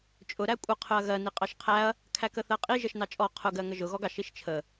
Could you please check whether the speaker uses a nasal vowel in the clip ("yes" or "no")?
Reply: no